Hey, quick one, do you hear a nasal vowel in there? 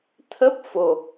no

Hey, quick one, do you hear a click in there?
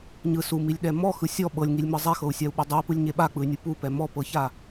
no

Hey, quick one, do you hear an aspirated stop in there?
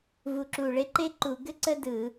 no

